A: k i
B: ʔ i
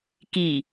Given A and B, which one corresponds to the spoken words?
A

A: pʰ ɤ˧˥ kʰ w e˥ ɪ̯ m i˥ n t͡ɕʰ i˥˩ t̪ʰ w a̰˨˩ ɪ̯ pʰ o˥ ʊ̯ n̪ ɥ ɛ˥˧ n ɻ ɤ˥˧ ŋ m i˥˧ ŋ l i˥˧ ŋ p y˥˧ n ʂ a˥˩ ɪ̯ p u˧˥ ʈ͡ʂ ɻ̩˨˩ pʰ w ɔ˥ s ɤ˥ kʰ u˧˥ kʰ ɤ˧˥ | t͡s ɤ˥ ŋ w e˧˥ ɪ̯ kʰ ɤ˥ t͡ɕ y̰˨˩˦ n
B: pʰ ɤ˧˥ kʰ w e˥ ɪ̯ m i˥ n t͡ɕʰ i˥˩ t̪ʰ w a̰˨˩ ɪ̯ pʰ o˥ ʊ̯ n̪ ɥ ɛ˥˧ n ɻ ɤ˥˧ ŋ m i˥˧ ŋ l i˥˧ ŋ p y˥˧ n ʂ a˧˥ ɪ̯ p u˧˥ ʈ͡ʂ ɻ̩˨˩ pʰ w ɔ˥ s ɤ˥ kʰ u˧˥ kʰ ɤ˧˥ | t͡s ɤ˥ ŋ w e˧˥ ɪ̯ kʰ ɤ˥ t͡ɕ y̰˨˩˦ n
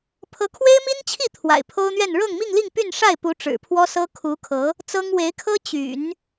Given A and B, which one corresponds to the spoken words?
A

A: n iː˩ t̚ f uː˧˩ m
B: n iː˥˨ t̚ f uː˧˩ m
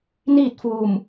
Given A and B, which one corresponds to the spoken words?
B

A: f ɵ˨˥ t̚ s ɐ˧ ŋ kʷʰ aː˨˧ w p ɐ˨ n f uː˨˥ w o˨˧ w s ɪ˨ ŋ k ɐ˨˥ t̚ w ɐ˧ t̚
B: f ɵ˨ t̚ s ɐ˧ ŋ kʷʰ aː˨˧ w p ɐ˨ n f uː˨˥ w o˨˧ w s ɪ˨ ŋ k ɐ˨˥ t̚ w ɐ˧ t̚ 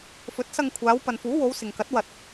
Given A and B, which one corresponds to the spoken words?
A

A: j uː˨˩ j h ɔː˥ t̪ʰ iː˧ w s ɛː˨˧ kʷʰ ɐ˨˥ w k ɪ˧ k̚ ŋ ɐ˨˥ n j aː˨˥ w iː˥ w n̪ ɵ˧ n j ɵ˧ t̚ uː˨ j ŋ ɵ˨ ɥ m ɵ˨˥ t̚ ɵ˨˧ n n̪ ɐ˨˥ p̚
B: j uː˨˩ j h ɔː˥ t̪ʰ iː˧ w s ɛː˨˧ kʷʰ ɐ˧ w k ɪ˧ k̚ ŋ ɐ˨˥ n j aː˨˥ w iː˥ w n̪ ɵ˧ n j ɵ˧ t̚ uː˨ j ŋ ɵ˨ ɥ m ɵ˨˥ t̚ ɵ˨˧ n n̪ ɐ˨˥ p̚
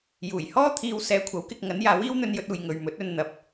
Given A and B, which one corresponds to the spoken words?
A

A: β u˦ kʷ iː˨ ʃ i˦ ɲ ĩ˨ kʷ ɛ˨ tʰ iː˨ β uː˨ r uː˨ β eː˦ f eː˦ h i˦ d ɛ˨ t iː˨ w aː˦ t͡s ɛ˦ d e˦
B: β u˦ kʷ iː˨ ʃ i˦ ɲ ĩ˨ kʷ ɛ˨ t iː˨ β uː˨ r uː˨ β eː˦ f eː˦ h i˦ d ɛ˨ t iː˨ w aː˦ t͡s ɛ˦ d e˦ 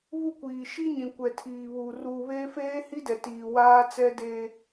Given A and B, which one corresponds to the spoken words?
A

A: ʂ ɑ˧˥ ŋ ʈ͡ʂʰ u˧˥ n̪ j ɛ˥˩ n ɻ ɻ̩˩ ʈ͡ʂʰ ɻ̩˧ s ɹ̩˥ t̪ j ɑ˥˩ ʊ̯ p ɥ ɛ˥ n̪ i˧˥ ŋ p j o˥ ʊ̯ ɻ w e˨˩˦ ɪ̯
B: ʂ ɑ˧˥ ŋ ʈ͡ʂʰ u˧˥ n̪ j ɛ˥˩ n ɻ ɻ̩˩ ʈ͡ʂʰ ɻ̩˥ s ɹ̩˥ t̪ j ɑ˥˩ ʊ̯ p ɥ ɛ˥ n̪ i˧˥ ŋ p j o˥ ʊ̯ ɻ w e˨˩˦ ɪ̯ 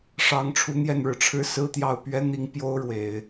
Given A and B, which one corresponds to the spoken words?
B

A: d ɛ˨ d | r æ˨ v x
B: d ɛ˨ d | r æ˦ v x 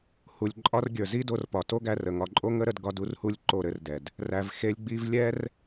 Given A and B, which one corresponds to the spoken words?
A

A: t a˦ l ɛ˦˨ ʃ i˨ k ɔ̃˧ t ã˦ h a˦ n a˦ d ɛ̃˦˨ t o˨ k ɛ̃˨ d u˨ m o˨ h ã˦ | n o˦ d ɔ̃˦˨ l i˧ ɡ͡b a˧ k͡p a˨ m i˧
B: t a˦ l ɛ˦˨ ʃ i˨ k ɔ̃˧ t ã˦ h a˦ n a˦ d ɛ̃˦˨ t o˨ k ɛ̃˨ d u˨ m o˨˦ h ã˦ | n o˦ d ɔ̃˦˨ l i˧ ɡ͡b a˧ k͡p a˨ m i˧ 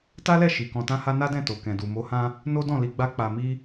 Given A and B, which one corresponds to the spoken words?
B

